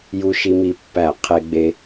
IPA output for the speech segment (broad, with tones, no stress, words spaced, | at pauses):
ju˨ʃi˨mi˨pːæ˨˩˦ qʰe˨ɡ͡be˨